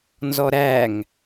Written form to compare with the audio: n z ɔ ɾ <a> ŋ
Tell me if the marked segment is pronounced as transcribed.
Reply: no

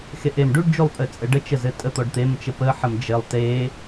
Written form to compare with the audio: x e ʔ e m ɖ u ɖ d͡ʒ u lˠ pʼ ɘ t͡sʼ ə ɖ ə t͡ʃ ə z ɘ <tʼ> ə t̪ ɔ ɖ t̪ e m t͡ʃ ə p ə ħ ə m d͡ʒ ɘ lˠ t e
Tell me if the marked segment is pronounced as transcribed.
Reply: yes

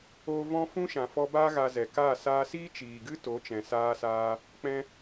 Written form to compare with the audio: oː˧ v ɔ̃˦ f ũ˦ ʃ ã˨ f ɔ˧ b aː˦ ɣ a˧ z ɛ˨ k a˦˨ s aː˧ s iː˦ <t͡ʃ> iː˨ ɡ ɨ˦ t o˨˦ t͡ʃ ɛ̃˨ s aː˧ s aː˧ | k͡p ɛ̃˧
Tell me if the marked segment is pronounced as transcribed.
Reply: yes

